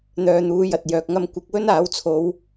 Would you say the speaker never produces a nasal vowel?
yes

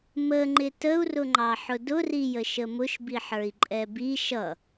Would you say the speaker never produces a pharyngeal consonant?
no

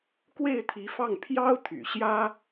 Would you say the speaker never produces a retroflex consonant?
yes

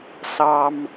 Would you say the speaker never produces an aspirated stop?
yes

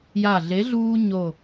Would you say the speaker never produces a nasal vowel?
yes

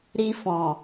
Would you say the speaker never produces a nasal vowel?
no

